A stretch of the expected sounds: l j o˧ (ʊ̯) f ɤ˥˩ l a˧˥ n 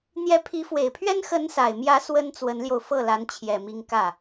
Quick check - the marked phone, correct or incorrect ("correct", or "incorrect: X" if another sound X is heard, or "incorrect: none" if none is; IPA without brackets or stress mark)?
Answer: correct